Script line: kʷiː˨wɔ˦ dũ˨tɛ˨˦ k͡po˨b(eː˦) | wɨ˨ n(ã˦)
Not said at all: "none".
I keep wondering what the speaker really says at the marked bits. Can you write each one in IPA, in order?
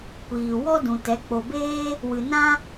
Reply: eː˦, ã˦

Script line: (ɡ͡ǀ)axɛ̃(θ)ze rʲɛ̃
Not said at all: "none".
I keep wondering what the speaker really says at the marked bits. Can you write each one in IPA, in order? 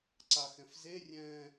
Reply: ǀ, f

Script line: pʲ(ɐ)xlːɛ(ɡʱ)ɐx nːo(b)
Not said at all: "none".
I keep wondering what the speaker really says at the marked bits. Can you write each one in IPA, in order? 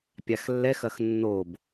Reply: a, x, b

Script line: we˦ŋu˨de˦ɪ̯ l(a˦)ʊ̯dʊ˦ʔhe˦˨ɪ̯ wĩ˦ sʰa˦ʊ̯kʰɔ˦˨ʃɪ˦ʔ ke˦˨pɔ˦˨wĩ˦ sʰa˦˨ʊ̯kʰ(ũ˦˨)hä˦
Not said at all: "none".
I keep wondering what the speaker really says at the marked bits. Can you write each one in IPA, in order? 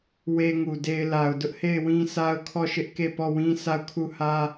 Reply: a˨, u˦˨

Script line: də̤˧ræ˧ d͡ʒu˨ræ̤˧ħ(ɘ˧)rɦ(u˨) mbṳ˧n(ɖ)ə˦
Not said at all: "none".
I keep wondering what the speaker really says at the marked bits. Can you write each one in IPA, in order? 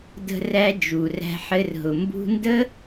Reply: ɘ˧, ʊ˨, d

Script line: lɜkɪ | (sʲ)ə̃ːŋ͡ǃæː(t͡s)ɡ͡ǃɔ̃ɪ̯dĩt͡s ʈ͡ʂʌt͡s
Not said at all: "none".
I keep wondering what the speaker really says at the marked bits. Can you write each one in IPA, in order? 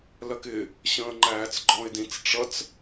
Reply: ɕ, t͡s

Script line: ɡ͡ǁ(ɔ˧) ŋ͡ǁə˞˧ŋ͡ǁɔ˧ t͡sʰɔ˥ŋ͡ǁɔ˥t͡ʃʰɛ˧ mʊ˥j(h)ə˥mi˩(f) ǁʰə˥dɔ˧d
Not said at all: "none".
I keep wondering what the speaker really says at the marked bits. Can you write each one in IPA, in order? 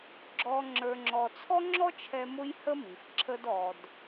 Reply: ɔ˧, h, f

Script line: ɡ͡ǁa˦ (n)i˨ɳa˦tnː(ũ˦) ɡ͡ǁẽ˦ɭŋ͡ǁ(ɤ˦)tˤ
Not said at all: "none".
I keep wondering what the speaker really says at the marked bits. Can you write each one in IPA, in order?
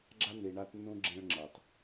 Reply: n, ũ˦, ɤ˨

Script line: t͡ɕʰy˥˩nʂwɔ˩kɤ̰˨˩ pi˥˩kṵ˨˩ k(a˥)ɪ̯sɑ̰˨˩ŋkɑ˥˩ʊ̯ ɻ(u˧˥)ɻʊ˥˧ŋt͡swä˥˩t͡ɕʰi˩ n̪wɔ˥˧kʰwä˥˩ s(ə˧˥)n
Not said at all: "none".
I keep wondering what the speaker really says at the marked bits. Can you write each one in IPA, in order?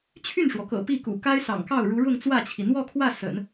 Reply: a˥, u˧˥, ə̰˨˩˦

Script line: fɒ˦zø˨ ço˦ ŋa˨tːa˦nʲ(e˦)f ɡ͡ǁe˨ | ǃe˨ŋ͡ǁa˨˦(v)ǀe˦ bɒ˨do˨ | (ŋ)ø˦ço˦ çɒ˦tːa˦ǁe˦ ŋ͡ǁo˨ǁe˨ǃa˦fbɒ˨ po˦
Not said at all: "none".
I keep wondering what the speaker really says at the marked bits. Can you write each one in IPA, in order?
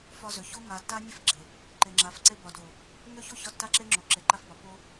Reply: e˦, f, ŋ

